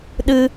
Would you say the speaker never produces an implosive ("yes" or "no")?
no